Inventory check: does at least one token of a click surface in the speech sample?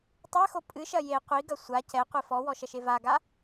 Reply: no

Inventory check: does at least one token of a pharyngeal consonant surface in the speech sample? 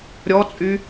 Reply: no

